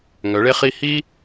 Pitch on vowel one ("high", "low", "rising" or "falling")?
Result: rising